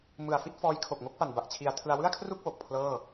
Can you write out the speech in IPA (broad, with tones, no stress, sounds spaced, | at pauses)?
m ɯ˨˩ a̯ f i˥˩ t̚ f ɔː˦˥ j kʰ o˨˩ k̚ ŋ o˦˥ k̚ p a˨˩ n b a˨˩ ʔ t͡ɕʰ i˨˩ a̯ tʰ ɯ˧ a̯ w ɯ˥˩ a̯ kʰ r u˥˩ k̚ w o˨˩ k̚ pʰ l ɤː˥˩